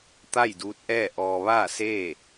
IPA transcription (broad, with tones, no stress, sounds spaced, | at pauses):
t̪ a˥˨ j d uː˧˥ t̚ ʔ ɛː˥˨ ʔ ɔː˧ ʋ aː˥˨ s eː˥˨